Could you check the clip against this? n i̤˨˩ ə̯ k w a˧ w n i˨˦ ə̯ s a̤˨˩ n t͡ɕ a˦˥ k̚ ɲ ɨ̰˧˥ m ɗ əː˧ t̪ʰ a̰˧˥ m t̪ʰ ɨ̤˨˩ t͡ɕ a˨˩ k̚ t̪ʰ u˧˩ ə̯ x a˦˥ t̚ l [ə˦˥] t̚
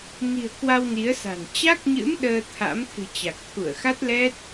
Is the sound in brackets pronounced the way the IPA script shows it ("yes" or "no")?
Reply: no